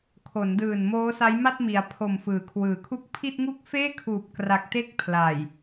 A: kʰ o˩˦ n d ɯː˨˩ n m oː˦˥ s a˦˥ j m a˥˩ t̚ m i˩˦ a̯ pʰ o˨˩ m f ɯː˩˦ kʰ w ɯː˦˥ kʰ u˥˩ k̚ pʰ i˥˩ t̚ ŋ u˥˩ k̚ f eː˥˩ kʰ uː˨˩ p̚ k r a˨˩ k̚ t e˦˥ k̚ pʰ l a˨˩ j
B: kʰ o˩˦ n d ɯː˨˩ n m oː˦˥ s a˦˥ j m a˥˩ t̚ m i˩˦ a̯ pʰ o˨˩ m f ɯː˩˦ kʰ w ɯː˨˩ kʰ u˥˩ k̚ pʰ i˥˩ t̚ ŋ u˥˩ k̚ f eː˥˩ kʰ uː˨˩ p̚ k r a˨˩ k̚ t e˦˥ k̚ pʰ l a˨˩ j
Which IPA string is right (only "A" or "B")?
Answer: B